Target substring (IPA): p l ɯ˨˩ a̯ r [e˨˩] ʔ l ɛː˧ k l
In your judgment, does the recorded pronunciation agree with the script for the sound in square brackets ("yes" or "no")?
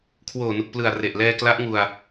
yes